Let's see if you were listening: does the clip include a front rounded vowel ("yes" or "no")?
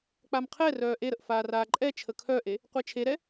yes